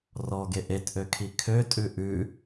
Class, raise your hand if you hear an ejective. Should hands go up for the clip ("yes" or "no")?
yes